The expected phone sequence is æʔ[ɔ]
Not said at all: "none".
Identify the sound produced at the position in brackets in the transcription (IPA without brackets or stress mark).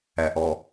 ɔ